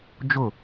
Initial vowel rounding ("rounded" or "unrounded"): rounded